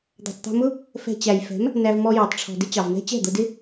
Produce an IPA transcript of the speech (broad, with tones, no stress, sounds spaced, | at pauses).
d̪ ɛ̤˨ tˤ t̪ æ̤˧ m ʊ˦ | f ɛ̤˧ t͡ɕ æ˨ j f ɛ̤˨˦ m | n æ˧ v m ɔ˧ j ɑ˨ tˤ ʈ͡ʂʰ ɔ̤˨ d ɪ˦ t͡ɕ ɑ˨ v n ɛ̤˦ t͡ɕ ɛ̤˦˨ d̪ ʊ˧ d ɪ˦